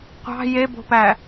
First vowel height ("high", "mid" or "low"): low